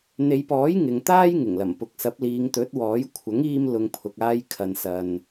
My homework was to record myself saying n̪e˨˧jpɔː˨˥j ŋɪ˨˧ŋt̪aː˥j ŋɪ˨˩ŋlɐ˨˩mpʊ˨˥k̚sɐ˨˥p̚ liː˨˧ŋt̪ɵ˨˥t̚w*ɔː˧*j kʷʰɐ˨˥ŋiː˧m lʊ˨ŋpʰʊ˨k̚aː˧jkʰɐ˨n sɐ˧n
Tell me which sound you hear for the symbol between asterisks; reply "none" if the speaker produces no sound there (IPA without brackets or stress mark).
ɔː˨˥